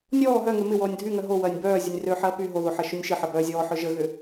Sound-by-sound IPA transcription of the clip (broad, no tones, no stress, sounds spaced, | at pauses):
nʲ ɔː ɦ œ ŋ ø m ɪ w ɔː nʲ dʱ y ŋ œ ɦ o w ɐː nʲ b œː zʲ ə nʲ r ø ħ ɐː p y ɦ o ð o ħ ɐ ʃ ʊ nʲ ʃ ɪ ħ ɐ b œː zʲ ɔː ħ œ ʒ ə ɣ ʏ